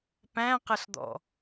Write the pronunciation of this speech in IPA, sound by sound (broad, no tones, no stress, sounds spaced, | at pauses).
p æ̃ q ə ɬ d̪ ɔ̰